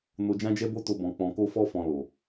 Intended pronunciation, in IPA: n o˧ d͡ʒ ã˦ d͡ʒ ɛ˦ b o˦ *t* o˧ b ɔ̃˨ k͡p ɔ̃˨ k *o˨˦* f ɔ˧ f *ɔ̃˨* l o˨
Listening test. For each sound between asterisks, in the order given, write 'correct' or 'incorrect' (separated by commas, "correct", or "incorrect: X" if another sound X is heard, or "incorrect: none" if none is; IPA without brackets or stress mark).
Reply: correct, incorrect: o˧, correct